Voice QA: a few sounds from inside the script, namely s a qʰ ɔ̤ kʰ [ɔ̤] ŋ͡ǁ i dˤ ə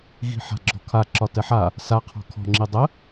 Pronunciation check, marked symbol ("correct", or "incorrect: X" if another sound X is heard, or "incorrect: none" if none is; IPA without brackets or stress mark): correct